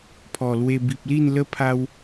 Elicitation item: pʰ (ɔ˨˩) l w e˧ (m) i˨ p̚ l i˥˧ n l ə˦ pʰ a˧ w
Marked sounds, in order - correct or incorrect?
correct, incorrect: b

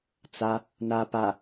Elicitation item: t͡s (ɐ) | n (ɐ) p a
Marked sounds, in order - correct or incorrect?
incorrect: a, incorrect: a

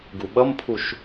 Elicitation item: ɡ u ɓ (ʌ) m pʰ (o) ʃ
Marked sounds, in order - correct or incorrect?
correct, incorrect: u

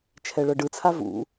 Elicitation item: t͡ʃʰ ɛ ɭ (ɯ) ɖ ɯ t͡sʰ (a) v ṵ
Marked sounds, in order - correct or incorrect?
incorrect: ɤ, correct

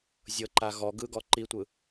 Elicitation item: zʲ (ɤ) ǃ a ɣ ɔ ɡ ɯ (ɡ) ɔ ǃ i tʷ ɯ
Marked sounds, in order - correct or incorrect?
correct, correct

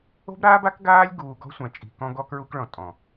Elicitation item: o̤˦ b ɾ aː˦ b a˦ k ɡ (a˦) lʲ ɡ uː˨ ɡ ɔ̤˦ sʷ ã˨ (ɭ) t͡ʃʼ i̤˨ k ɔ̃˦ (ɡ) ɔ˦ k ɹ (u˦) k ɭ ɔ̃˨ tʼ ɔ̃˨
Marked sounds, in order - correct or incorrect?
incorrect: aː˦, incorrect: none, correct, correct

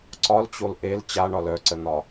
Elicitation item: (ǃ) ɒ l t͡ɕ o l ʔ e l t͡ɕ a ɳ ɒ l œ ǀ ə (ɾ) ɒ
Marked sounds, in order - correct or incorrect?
incorrect: ǀ, incorrect: n̪

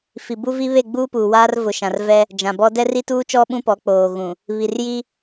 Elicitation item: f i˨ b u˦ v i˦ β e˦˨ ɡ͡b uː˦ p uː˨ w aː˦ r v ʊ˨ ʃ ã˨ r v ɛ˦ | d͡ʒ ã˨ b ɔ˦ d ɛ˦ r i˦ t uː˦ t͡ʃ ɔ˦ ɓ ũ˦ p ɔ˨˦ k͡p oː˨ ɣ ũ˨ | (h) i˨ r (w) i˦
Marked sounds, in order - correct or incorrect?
incorrect: β, incorrect: j

